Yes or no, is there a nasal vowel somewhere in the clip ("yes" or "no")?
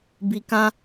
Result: yes